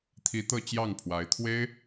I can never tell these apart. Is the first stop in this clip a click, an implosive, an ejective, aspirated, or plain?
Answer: aspirated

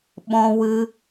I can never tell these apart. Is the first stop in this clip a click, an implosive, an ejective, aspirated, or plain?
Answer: implosive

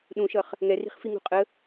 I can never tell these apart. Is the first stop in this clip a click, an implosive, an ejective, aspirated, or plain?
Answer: implosive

